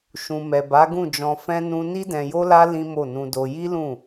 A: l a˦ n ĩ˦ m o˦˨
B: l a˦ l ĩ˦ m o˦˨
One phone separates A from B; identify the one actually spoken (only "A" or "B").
B